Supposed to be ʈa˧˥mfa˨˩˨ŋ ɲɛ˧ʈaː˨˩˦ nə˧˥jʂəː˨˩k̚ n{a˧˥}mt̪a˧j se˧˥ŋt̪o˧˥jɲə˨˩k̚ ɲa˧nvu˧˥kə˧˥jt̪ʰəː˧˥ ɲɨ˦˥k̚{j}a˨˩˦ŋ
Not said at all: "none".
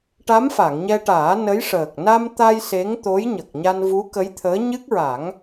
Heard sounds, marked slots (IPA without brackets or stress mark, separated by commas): a˧, ɹ